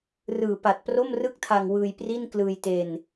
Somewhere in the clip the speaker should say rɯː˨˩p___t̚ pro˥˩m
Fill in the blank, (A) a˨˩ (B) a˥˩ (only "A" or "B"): A